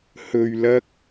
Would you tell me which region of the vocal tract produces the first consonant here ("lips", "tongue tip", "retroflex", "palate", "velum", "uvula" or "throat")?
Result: throat